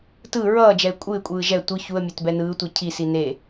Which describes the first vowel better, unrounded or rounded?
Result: unrounded